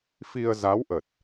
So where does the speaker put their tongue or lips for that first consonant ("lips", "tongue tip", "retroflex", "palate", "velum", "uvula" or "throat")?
lips